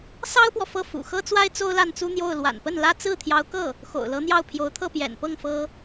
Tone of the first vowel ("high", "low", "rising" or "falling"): high